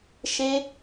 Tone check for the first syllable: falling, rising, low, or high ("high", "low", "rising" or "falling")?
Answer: high